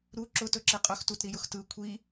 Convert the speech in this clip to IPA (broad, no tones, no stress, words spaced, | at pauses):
ɾu ǁʊ tɵǁiqʼɵx tutɾijʊxtɯ kʷʰi